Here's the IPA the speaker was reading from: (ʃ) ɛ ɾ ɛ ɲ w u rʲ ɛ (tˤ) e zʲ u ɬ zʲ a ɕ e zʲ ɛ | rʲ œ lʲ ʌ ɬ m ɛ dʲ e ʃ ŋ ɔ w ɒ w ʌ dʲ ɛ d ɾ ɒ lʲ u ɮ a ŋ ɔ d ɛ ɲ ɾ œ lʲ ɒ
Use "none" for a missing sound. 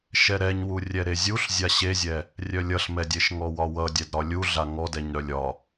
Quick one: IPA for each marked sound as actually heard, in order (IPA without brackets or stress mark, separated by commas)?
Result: ʃ, ɾ